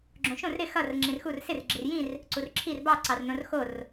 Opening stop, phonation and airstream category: click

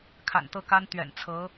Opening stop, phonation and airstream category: aspirated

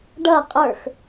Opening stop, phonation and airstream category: plain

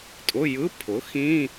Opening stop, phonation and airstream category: ejective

